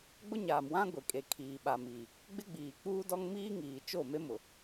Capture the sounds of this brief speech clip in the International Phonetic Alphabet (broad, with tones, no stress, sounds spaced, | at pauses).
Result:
ɡ͡b ʊ˦ ɲ aː˨ m w ã˦ ɡʷ e˨ kʼ e˨ kʰ iː˨ ɓ a˨ m i˨ | ɡ͡b ɪ˦ ɡ͡b iː˨ k͡p uː˦ d ɔ˦ ŋ m iː˦ ŋ iː˨ t͡ʃ o˦˨ m e˦ m ʊ˨